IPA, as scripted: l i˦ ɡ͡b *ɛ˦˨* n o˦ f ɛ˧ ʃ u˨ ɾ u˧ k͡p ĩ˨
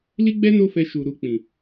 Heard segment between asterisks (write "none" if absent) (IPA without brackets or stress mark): ɛ˦